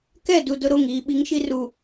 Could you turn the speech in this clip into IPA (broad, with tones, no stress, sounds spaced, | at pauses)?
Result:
k ɛ˦˨ d u˨ d ʊ˦ ɾ o˦˨ ŋ iː˨ ɓ i˨˦ ŋ ʃ i˦ r u˨